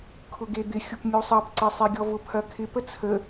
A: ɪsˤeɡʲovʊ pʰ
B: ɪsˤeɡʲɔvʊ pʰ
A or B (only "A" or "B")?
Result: B